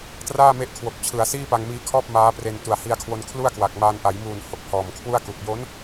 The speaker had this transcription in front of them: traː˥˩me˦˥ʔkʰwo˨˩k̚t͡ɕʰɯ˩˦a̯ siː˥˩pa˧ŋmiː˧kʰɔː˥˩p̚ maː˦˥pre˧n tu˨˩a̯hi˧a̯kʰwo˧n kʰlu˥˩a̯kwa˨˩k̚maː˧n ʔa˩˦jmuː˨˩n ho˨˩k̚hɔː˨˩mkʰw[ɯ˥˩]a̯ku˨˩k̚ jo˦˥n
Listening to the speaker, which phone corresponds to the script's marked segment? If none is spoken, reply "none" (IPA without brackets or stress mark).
u˥˩